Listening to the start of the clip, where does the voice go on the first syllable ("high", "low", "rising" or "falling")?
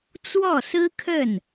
falling